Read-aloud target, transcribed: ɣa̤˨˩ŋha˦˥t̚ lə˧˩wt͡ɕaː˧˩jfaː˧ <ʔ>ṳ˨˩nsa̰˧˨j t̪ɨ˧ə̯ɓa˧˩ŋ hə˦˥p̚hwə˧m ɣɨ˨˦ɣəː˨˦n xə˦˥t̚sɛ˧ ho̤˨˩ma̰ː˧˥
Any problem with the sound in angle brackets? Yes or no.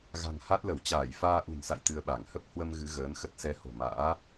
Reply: no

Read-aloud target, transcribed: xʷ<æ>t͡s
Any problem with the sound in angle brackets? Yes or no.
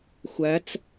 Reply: no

